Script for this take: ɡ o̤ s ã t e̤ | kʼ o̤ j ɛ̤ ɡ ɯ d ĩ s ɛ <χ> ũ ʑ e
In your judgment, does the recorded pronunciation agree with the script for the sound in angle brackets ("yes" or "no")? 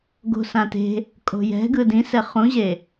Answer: yes